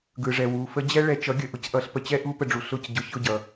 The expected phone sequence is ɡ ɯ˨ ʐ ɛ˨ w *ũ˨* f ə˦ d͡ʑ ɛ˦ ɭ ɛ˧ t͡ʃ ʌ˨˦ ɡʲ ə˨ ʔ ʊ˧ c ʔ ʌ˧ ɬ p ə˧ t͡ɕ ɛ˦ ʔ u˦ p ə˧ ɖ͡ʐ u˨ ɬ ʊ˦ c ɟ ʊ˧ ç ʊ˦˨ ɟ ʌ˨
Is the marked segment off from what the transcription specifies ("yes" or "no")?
yes